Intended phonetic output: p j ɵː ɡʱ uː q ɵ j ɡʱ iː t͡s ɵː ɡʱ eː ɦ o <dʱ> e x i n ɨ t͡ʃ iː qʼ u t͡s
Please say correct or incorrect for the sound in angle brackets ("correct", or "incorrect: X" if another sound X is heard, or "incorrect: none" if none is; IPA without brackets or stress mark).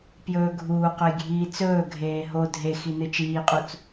correct